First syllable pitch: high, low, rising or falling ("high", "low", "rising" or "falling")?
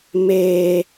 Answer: high